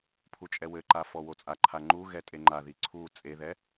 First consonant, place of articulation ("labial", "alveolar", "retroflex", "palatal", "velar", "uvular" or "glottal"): labial